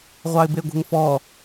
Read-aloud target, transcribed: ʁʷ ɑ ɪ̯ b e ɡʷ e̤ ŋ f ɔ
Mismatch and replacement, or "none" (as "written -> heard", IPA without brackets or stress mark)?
none